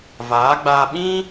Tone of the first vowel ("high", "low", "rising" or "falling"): rising